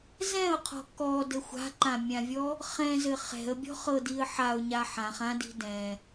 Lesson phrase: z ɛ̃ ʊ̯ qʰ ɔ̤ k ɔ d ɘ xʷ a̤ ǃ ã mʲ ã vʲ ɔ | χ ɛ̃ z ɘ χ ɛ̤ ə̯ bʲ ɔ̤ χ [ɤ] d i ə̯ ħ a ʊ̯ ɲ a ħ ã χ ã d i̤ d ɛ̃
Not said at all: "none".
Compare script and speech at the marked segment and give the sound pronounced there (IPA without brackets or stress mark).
ɤ